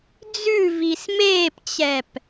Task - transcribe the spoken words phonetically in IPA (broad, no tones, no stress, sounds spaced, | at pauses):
d͡z ʉ v i s m eː p t͡ɕ ɛ p